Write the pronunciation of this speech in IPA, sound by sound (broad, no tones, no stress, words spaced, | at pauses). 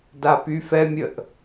dapyfɛmʲəʔ